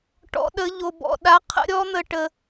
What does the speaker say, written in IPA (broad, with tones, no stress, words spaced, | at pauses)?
ʈɔ̰˨˦ɗə˨˦ʎo˨ bɔ̰˨ ɗa˨˦qʰə̰˨˦ɾʲɔ˨˦n̪ə˨ ʈə˨